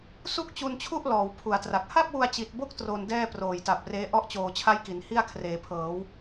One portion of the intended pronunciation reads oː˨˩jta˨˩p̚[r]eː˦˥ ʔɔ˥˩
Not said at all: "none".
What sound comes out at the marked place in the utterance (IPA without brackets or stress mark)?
r